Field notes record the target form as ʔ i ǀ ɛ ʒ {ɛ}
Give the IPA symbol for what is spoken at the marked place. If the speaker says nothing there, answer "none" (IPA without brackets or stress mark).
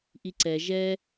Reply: ɛ